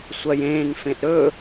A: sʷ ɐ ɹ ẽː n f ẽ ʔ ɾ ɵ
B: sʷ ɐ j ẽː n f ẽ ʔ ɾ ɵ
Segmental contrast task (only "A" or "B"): B